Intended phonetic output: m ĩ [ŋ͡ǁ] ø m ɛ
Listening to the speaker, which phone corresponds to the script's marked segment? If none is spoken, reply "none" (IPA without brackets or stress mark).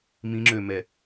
ŋ͡ǁ